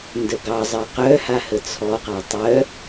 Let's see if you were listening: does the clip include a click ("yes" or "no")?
no